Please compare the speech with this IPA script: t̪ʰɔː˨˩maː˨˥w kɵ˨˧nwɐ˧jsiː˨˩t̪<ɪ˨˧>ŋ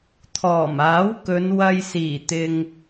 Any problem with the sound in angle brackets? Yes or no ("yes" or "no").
yes